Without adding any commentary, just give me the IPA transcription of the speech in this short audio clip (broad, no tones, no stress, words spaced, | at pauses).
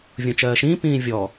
vʲõt͡ʃɜːʃĩː pĩːvʲɔ